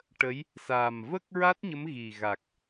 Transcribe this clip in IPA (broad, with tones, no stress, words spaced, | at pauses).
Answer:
ʈə˧˥j | saː˨˩mvə˦˥k̚ ɹa˦˥t̚ɲə˧˥m ɣi˨˩ ɣa˨˩k̚